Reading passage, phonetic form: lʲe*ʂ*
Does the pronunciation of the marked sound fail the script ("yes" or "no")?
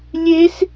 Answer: yes